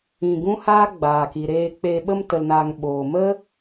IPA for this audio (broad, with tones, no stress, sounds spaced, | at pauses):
ĩ˧ ɡ ũ˦ h aː˦ ɡ͡b aː˨ k i˨ ɾ eː˧ k͡p eː˧ ɓ ə˧ m t ə˨ l n aː˨ ŋ ɓ oː˨ m ə˦